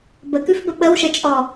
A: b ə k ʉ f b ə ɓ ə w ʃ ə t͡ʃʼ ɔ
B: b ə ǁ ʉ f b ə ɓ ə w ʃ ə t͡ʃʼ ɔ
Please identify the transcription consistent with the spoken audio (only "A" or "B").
A